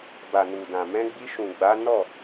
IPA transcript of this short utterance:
b a˨ n u˨ d ã˨ m ɛ̃˧ ɡ͡b i˧ ʃ ũ˨ ɡ͡b a˨˦ n ɔ˦˨

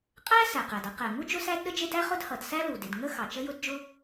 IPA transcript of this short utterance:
qʼ æ˥ s æ˩ q æ˩ d ʌ˥ q ɛ˩ ŋ u˥ d͡ʒ ʊ˥ s æ˥ d ɗ ə˥ d͡ʒ ɪ˥ d æ˥ χ ʊ˥ d h ʌ˩ d s æ˥ l u˩ d ɪ˩ d ŋ ə˥ x ɑ˩ t͡ʃ ə˥ j ʊ˥ d d͡ʒ ʊ˥

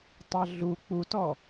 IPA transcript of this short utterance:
tˤ ɑ ɮ u k͡p u t ɔ

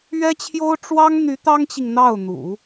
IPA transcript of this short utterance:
ɥ ɛ˥ t͡ɕʰ j o˥ ʊ̯ ʈ͡ʂ w ɑ˥ ŋ n̪ y˧˥ t̪ ɑ˥ ŋ t͡ɕ i˨ ŋ n̪ ɑ˥˩ ʊ̯ n̪ ṵ˨˩˦

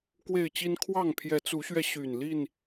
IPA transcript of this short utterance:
k w e˥˨ ɪ̯ t͡ɕ i˦ n kʰ w ɑ˥˨ ŋ pʰ j ɛ˨˦ t͡s u˨˦ ɕ ɥ ɛ˧ ɕ y˨˩ n l i˥˨ n

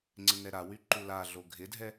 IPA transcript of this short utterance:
ŋ͡ǀ ɪ n ɛ ɾ a w y ǃ u l a ɮ o ɡʱ ɪ dʱ ɛ

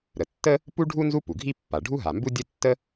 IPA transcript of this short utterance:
ɾ ə˩ tː ə˥ | p u˥ ɖʱ u˥ n z u˥ p u˩ ɡʱ i˥ pː a˩ ɖʱ u˥ ɦ a˩ m b u˥ dʲ ə˥ tː ə˥

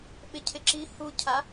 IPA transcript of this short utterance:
ɓ ɪ cʰ ɪ ǁ i h u cʰ a

